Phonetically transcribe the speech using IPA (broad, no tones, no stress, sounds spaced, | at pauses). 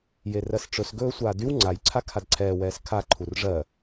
j e r ɜ s ʈ͡ʂ ɵ s ɡ ɵː sʷ aː d y w ŋ͡ǀ a j ǀʰ a kʰ a d ǀʰ ɛː w ɛː s kʰ a ǃʰ u r ʐ ɜ